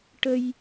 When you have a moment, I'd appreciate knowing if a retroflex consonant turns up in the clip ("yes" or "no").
yes